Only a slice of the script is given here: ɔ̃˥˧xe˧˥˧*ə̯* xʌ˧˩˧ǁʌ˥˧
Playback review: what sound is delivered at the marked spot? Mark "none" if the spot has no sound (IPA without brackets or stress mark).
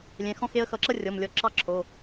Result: ə̯